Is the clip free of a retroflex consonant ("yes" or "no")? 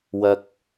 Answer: yes